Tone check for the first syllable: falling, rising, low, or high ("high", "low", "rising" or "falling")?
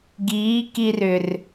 rising